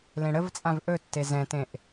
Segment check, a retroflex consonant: present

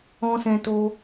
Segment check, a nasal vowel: present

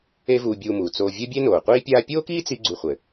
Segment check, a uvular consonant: present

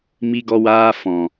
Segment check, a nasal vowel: present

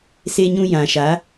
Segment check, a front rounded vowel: absent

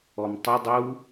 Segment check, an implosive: absent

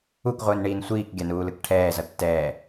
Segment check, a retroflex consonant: present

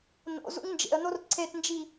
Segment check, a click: present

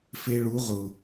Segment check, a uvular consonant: present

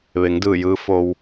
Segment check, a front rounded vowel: absent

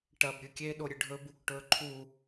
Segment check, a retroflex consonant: present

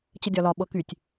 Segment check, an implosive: present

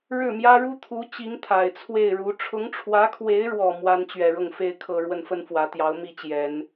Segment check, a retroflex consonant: present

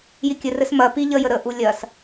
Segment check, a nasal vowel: absent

